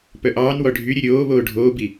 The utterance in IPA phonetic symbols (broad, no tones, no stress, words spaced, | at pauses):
pœʔɑːnwɔ ɖʱyɾʲɵ ɾʲoː βoːɖʱoːbi